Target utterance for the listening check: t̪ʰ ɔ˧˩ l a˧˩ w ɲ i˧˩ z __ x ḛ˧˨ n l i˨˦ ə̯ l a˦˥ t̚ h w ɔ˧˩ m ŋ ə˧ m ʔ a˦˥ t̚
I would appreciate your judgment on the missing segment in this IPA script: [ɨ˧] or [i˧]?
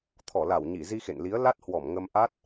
i˧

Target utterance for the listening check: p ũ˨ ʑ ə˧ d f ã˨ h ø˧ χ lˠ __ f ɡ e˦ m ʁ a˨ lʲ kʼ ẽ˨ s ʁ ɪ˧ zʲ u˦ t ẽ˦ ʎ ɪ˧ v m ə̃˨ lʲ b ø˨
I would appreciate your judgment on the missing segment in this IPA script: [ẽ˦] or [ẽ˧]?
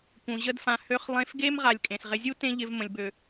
ẽ˧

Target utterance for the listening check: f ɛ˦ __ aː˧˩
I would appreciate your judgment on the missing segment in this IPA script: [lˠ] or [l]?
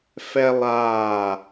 lˠ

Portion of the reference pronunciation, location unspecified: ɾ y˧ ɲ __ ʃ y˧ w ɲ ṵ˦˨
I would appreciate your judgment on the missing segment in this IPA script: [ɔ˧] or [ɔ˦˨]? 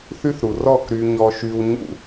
ɔ˧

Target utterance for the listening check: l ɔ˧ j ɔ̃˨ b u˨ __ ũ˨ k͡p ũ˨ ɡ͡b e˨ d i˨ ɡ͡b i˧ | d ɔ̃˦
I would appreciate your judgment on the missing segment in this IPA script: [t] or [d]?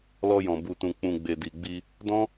t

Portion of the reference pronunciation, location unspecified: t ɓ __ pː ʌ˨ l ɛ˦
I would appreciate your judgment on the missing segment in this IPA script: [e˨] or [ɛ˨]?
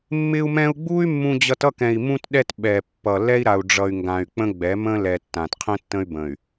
ɛ˨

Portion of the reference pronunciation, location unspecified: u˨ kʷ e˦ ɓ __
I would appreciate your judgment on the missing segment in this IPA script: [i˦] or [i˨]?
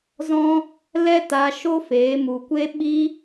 i˦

